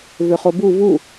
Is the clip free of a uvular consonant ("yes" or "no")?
no